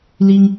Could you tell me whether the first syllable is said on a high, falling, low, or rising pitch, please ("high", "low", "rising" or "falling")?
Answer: high